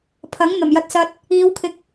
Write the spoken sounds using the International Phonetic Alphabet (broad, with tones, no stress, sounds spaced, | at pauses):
pʰ ɐ˨˥ ŋ n̪ ɐ˨˩ m j ɐ˧ t̚ s ɐ˧ t̚ | iː˨˧ w kʰ ɪ˨˥ k̚